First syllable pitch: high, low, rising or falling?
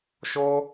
high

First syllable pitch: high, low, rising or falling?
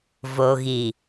low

